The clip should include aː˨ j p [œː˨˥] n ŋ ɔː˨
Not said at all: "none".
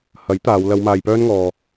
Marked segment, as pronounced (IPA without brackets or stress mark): œː˧